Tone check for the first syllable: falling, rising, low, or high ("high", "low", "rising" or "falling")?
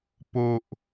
low